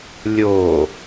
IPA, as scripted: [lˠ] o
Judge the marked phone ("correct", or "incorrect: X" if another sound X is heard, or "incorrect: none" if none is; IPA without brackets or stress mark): incorrect: lʲ